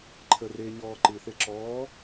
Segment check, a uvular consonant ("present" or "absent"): absent